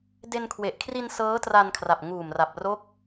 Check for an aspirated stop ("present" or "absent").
present